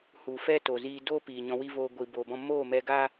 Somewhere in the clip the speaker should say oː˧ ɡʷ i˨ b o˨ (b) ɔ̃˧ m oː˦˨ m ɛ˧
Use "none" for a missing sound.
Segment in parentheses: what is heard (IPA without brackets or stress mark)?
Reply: b